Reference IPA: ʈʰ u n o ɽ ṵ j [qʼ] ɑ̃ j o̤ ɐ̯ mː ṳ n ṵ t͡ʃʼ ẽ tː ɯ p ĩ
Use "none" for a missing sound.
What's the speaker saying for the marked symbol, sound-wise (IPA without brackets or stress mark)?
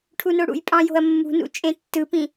pʼ